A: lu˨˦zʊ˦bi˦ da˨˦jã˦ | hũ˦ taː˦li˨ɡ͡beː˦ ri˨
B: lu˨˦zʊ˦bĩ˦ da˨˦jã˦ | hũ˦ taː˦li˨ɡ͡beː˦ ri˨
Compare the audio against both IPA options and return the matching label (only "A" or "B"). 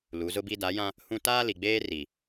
A